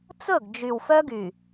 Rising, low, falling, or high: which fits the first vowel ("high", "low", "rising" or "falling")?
falling